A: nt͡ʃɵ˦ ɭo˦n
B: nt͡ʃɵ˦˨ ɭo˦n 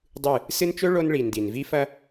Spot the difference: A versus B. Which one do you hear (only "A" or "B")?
A